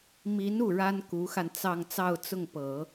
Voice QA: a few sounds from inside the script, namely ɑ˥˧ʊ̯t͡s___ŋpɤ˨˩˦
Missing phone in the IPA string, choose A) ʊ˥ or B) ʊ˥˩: B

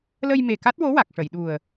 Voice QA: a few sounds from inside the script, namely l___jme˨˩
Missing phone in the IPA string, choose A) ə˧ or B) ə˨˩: A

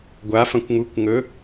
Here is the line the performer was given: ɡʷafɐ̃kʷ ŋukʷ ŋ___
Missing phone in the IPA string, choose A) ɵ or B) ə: A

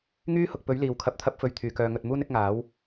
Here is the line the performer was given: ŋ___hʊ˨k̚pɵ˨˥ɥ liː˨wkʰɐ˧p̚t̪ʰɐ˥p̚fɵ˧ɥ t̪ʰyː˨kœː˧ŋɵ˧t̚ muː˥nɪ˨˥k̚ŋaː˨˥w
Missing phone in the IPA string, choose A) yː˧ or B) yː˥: B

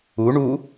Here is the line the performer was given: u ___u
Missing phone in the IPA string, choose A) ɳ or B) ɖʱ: A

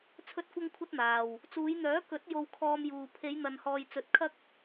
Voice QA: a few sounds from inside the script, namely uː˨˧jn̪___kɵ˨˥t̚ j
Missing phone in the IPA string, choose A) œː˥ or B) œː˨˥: B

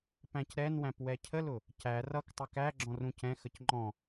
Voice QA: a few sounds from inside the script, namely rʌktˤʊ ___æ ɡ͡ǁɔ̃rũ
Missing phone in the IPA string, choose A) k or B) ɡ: A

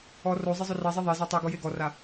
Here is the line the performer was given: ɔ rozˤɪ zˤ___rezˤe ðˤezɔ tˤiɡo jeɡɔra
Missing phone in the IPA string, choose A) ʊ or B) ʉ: A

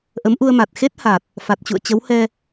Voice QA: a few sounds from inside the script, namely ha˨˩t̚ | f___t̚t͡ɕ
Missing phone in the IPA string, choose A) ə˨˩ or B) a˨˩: B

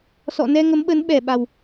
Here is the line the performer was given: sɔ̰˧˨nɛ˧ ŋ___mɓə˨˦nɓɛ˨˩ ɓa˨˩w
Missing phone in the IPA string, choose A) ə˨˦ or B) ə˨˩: A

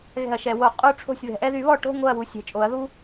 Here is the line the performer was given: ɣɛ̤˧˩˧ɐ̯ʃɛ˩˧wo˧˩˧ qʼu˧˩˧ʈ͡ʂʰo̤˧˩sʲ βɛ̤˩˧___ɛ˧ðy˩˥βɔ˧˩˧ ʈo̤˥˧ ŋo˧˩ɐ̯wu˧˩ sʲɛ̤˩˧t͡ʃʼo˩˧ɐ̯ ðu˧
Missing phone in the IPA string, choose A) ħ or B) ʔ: B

